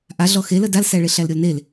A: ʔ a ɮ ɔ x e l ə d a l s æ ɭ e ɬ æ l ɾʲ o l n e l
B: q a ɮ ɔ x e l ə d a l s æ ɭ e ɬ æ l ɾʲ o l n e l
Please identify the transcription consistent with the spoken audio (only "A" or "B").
A